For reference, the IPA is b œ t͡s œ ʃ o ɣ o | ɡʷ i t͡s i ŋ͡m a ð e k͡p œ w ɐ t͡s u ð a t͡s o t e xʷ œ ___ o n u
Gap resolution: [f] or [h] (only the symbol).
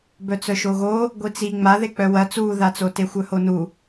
h